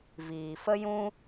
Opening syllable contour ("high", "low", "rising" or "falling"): low